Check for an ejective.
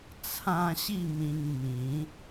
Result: absent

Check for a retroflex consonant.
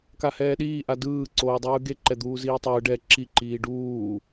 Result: present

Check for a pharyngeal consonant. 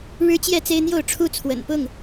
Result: absent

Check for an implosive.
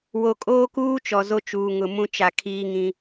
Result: absent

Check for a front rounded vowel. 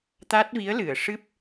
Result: absent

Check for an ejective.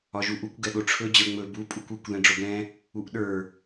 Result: present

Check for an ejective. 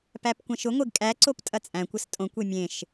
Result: present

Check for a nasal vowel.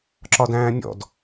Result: present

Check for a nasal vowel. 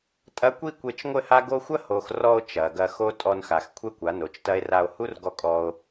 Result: absent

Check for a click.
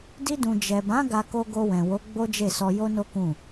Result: absent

